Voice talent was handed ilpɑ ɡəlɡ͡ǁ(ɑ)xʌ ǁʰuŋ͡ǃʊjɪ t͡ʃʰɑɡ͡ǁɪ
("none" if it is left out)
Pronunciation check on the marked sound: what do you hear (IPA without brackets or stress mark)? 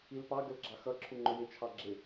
ɑ